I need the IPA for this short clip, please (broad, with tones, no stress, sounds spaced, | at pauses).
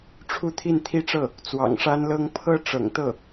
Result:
ʈ͡ʂʰ u˥˧ t̪ʰ i˥˧ n t̪ʰ i˥˧ ʈ͡ʂ ɤ˥˩ | t͡s w ɑ̰˨˩ ŋ ʂ a˥ n l ɤ˥ ŋ pʰ ɤ˥ ʈ͡ʂ ɤ̰˨˩ ŋ t̪ ɤ˥˩